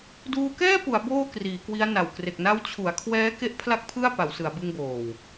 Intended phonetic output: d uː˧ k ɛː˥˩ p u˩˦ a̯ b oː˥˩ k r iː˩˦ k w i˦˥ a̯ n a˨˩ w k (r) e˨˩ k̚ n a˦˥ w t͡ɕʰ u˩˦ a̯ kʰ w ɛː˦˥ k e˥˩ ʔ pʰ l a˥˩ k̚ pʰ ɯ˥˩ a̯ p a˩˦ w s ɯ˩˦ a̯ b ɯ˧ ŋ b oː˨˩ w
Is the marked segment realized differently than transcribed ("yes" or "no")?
no